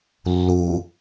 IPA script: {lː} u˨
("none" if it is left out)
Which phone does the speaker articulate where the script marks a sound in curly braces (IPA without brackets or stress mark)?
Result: lː